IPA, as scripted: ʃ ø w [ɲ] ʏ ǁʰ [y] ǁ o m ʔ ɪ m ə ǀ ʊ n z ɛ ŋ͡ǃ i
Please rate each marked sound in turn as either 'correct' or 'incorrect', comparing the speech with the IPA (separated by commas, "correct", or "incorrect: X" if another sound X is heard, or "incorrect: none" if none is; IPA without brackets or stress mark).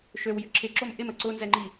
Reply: incorrect: j, incorrect: ɪ